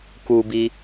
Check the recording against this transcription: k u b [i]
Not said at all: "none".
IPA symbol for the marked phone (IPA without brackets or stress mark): i